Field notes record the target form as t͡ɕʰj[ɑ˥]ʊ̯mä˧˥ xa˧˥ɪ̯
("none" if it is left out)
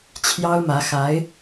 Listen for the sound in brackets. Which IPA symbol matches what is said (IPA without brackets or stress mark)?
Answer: ɑ˥